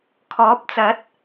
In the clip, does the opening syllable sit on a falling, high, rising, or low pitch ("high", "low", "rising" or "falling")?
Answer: rising